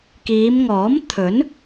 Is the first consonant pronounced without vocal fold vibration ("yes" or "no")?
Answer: yes